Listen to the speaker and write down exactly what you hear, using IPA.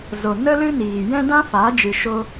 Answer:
z o˨ n ə˦ l ɨ˦ n iː˨ j ɛ̃˦ d ã˦ f aː˨˦ d͡ʒ ɨ˧ ʃ o˦

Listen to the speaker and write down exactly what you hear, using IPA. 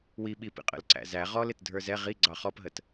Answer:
w i ɓ i p ḭ qʼ ə̰ l ǀ æ̰ z æ ʁ ɔ l ɪ t dʱ ə˞ z ɛ ʁ i ɡ͡ǀ ɑ χ ɔ p ɦ ə t

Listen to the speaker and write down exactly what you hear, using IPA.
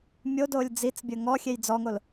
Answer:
mʲ o d oː lʲ d͡z i t͡s bʲ əː ŋ ɔ xʲ e j d͡z ɔ ŋ o l

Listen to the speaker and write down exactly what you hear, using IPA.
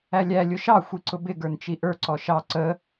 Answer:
æ lʲ æ lʲ ʊ ʃ ɑ xʷ i ǀ ʊ b ɪ ɡ ə˞ n t͡ʃ i ʔ ə˞ ǀ ɔ ʃ ɑ ǀ ə

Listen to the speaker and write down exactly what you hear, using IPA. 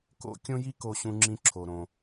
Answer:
k o̰˥ kʲ õ˥ j i˥ k o˧ ɕ ũ˧ ŋ͡ǁ ĩ˧ ǁʰ o˩ ɾ õ˩

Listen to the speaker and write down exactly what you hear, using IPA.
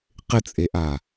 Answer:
q ɪ t͡sʼ e ʔ a

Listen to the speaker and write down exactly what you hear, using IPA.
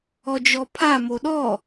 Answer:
ɔ d͡ʒ ɔ pʰ a m o ɗ ɔ

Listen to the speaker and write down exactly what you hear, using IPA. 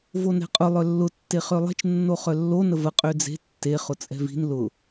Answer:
v o n ɛ̤ qʼ ʊ lˠ œ lː ʊ tː e χ ø lˠ e̤ t͡ʃ nː o χ œ lː o n ə v ə qʼ ø d͡z e̤ tː e χ ʊ t͡sʼ ɛ̤ v i̤ n l ʊ

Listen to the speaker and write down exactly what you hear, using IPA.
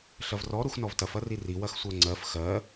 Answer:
ɬ ɐ v r ɔ ɾ u x n ɔ v t ɐ f ɐ r i r i w ɐ x sʷ ɜ ŋ͡ǀ ɜ f x ɜ

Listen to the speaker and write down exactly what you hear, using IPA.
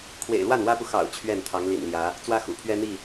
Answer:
kʰ w ḛ˨˩ ɪ̯ l w a˥˨ n w ä˦ p u˨ x ɑ̰˨˩ ʊ̯ t͡ɕʰ ɥ ɛ˥˨ n t̪ʰ ɑ˨˦ ŋ l ḭ˨˩ n l j ä˨˦ | t͡s w ä˦ x ṵ˨˩ pʰ ɥ ɛ˦ n̪ i˥˨

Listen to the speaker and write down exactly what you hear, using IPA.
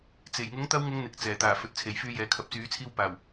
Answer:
t͡s e˨˩ j ŋ ʊ˨˥ ŋ t̪ ɐ˧ w ŋ ʊ˨˧ ŋ n̪ ɪ˨ k̚ t͡s ɛː˨˩ t̪ aː˨˩ f ɵ˨ t̚ t͡sʰ e˨˩ j f yː˧ j ɛː˨ kʰ ɐ˨˥ p̚ t͡s yː˨˥ t͡sʰ iː˧ w p aː˨˩ w

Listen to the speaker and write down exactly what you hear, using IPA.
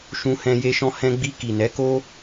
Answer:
ʃ ũ˧ h ɛ̃˧ j e˧ ʃ ɔ̃˧ h ɛ̃˧ ɡ͡b i˧ k i˨ n ɛ˨˦ k o˦

